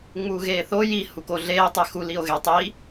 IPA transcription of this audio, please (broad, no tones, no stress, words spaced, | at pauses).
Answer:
ŋ͡muːɣeːθo ji hukoɮeː tˤexu lio̯ɣe tˤi